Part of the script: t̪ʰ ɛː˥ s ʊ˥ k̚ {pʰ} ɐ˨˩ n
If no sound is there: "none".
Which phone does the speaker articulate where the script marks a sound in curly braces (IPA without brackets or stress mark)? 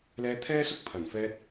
pʰ